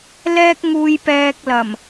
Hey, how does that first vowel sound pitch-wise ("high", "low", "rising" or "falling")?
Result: high